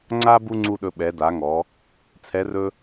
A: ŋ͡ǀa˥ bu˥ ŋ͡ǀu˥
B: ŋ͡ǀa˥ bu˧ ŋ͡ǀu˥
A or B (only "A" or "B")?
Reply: A